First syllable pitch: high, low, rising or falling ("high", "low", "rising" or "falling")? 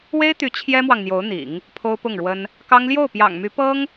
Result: high